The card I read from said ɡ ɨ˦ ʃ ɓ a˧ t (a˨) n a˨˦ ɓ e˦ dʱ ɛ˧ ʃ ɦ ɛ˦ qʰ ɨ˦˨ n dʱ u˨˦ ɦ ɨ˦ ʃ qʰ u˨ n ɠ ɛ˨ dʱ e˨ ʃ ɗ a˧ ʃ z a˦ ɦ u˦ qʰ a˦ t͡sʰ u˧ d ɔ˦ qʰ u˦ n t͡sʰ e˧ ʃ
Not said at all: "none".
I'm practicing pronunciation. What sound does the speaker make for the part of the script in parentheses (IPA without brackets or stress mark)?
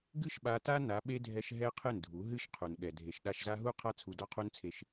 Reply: a˦